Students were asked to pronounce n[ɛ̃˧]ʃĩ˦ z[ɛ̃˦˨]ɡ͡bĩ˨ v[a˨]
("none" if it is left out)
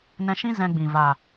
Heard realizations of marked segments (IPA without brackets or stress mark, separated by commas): ɛ̃˧, ɛ̃˧, a˨